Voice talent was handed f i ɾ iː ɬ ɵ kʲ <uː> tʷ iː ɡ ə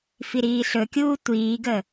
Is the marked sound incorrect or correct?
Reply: correct